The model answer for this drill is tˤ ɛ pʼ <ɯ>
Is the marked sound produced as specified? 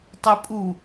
no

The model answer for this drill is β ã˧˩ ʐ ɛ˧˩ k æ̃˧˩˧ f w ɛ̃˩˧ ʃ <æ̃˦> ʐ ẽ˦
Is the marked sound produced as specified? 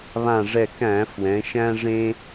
yes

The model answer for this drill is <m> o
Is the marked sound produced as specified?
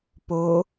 no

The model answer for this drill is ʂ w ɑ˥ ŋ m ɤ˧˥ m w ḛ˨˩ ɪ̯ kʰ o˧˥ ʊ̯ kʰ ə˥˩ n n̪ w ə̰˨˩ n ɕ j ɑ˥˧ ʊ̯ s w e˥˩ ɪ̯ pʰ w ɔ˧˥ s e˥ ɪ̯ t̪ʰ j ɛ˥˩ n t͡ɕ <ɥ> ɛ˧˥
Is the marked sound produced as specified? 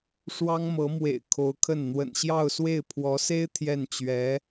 yes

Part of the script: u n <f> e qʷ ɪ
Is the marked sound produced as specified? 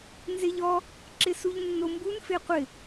yes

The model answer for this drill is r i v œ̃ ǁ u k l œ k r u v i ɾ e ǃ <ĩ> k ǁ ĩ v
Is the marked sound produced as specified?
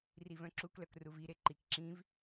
no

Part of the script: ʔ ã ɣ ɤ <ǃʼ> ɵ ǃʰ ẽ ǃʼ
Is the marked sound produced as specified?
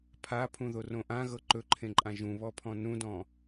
no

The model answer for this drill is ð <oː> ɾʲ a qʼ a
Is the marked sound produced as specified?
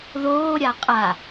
yes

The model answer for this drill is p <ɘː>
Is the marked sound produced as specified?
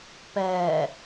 no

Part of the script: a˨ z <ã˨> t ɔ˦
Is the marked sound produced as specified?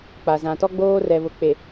yes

